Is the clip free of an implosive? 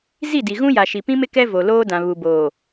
yes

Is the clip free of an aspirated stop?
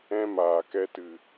yes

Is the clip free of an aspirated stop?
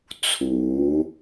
no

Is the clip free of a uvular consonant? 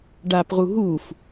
no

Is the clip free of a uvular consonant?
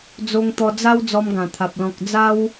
yes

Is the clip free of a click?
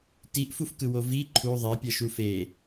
no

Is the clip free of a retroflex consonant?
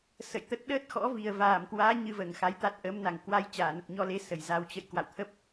yes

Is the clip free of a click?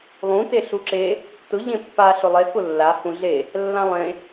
no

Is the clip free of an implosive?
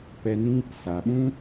no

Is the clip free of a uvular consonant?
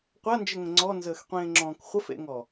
no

